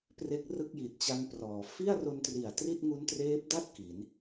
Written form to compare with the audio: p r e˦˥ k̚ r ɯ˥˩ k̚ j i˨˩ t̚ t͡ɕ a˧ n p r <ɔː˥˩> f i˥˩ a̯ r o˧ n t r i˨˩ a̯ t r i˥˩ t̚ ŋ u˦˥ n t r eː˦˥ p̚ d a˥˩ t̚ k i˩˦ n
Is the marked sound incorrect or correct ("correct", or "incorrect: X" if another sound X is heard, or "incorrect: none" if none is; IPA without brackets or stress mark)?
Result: incorrect: ɔː˩˦